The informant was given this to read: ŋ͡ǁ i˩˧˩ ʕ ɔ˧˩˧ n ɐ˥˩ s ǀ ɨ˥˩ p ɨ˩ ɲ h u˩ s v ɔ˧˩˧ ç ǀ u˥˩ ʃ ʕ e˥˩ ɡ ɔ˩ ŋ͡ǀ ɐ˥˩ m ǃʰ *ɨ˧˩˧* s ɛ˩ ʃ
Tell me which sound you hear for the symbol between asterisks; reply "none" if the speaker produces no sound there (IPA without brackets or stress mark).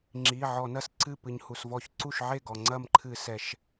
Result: ɨ˧˩˧